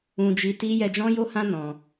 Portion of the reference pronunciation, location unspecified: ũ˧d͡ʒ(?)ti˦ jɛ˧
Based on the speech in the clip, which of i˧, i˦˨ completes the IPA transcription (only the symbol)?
i˧